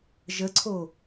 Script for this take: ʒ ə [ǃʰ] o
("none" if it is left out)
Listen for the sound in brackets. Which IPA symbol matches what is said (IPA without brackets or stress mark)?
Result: ǀʰ